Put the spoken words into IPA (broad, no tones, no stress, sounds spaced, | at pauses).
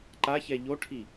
ǃ a ç ɛ ʎ o ʈʰ i